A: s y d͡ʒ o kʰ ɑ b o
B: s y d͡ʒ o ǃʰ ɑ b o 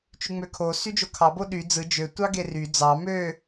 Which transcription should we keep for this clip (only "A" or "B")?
A